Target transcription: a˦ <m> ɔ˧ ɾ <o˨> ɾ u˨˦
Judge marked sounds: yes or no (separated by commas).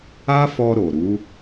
no, yes